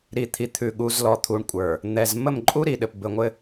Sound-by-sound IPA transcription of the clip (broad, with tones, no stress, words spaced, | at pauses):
ɾi˨t̪ʰi˨ t̪ʰʉ˨ɠu˨zlɔ˨t̪ʰu˨ɳ kʷʼə˞˨ | n̪ɛ˨z mə˦˨mǃʼu˦ɾi˨ɗɘ˨p bɘ˨ŋʷɘ˦